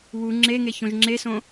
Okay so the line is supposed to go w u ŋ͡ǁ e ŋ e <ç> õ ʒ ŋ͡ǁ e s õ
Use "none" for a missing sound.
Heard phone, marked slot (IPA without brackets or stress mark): ç